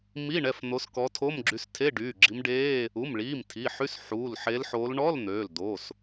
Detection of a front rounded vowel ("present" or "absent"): present